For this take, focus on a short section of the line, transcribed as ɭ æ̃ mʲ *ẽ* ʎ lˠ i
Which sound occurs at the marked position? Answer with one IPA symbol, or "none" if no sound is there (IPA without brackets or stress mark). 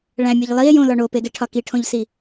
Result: e